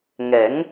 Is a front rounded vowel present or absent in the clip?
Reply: absent